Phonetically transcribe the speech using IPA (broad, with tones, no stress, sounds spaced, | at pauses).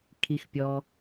kʰ i˩ x pʲ ɔ˩